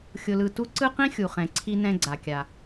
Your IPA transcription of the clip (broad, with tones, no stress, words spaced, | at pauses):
xʲʊ˧lɯ˧tu˥ ǀɯ˥qĩ˥xʲu˩ χɛ̃˩ǀʰi˧ nɛ̃˧ɡ͡ǀa˩kʲa˩